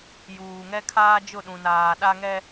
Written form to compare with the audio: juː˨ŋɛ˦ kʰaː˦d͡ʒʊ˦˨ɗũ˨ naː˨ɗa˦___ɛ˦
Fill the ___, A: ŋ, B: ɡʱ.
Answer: A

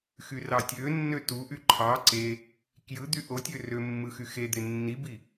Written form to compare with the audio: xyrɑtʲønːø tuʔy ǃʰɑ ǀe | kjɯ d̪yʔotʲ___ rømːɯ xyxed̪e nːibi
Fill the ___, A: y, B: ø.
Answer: B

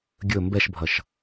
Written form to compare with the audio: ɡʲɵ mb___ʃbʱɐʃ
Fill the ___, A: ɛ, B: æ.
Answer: A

